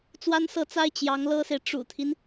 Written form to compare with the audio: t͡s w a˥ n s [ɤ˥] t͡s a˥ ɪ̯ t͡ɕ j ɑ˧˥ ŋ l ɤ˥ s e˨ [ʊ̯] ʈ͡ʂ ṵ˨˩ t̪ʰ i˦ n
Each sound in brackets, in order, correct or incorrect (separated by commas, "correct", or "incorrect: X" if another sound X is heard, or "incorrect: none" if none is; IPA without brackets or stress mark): incorrect: ɤ˥˩, incorrect: ɪ̯